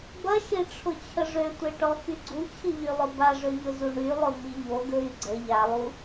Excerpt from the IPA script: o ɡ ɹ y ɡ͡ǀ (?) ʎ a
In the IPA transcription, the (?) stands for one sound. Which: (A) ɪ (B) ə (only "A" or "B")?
B